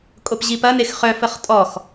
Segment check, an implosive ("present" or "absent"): absent